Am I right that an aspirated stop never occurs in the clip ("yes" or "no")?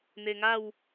yes